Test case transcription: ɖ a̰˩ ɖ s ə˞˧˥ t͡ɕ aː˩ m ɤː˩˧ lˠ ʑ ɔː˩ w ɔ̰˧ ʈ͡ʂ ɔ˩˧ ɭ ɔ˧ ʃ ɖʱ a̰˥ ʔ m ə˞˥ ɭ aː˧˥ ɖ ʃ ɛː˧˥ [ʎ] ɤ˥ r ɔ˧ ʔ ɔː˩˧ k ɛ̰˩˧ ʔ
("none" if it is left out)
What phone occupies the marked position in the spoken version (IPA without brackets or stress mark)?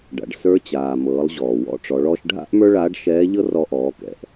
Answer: ʎ